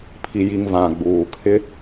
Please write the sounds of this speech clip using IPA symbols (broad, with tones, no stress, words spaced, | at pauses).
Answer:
pʰi˨ji˨ŋ vã˨ɡ͡buː˨ kʰɪ˦